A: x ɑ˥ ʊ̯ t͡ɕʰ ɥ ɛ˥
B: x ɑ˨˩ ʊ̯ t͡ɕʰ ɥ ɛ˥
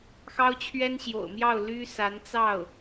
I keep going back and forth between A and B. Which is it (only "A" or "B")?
A